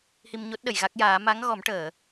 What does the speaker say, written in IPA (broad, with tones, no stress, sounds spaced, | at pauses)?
h i˧ m ɲ o˦˥ t̚ ɗ ə˨˩˨ j ɣ a˦˥ k̚ j aː˨˩˦ m a˧˥ ŋ ɣ ɔ˨˩˦ m ʈ əː˨˩˨